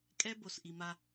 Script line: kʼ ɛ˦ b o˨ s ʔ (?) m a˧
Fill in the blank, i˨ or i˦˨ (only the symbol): i˨